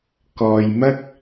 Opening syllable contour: low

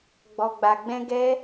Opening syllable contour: low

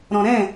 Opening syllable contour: low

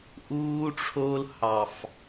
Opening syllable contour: high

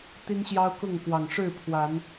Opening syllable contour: high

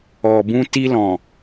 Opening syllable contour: low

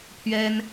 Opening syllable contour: high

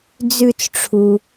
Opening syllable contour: falling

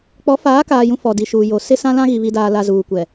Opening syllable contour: rising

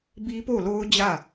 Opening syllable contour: high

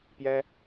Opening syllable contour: high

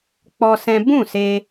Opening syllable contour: high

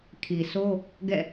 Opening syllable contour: low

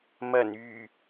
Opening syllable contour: low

